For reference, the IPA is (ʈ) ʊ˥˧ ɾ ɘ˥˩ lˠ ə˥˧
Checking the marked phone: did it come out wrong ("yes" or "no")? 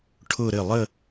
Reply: yes